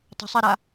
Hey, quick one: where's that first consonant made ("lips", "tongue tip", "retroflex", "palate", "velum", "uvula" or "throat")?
tongue tip